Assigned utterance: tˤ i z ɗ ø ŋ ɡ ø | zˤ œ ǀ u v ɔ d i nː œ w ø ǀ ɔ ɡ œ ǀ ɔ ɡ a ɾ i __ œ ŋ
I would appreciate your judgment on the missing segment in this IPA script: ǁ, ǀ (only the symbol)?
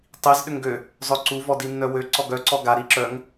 ǁ